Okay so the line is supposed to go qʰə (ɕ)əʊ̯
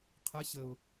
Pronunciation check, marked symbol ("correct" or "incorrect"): correct